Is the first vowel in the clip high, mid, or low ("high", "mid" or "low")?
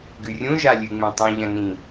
high